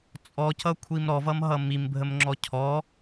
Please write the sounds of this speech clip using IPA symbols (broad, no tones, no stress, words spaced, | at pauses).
t͡sʼɔcʌkʷʰim ɾɔvʌmɦʌ mimbʱəmŋ͡ǁɔ cʰɔ